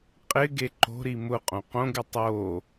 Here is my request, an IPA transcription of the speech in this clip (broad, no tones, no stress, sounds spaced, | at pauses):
qʼ ɪ ɡ e ǃ o̤ ɾ i m ʊ qʼ õ q õ ɡ ɪ tˤ o